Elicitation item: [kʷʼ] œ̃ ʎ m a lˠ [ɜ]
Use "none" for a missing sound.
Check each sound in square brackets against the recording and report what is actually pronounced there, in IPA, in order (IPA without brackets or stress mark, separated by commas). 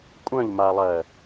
kʷʼ, ɜ